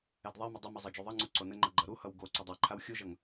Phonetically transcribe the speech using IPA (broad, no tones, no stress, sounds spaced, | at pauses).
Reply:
ɛ d ðˤ ɛ m ə dˤ ə m ʌ zˤ ɤ d͡ʒ u ðˤ ʌ ŋ͡ǀ u ǀ o n ə ŋ͡ǃ ɤ ɡ͡ǃ ʌ ɾ u h ʌ w ɡ o ǀ ɵ dˤ a ǃʰ a w xʲ u ʒ ʌ ŋ